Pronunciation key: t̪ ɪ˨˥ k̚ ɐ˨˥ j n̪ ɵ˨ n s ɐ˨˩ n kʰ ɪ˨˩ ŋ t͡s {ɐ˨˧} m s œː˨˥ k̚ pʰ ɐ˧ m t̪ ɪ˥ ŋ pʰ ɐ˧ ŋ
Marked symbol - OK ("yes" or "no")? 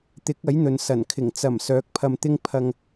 no